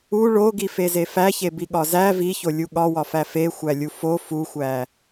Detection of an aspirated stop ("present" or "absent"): absent